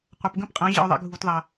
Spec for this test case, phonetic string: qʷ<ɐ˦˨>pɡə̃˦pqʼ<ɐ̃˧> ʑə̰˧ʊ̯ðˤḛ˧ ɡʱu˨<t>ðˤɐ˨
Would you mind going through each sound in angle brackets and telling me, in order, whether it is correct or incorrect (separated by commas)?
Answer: incorrect, incorrect, correct